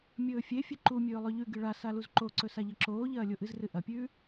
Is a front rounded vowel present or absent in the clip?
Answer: absent